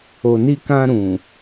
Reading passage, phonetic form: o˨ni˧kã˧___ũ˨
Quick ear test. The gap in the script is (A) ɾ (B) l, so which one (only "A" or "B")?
A